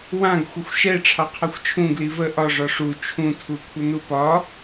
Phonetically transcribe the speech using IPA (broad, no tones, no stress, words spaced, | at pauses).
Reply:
wãɡ xʷəxʷʃɛ ʈ͡ʂʰɑqʰɑxʷt͡ʃʰũ ɡlivə ʔɒ ʐɒʂu t͡ʃʰũtʰu kʷʰənupɒ